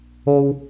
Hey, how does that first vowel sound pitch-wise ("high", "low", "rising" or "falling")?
high